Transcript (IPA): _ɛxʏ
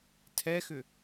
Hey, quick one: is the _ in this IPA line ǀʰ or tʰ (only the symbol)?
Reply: tʰ